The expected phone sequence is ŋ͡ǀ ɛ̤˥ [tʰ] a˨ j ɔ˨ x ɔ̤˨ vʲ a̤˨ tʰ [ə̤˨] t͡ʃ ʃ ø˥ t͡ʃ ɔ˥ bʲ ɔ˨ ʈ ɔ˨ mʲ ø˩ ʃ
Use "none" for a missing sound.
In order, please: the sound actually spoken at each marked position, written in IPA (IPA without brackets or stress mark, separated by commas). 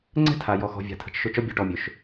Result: tʰ, ə̤˨